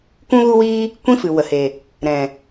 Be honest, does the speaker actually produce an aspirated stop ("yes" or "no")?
no